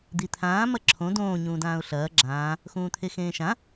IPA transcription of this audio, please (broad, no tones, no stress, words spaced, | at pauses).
d̪it̪ʰãː mɐǁʰõ dõː ɲũːdãːʊ̯ɬɐː ɡ͡ǁãː | xũːt̪ʰexẽːʃã